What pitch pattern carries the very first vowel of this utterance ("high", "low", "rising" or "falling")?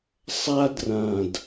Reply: high